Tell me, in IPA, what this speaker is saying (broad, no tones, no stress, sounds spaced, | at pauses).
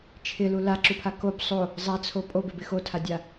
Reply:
t͡ʃʰ ɪ l u l a ǁ u pʰ a k o b sˤ o | zˤ a t͡sʰ o pʼ o b ɪ b ɪ x o tʰ a dʲ a